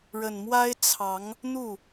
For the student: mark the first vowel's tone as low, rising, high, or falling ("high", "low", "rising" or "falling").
low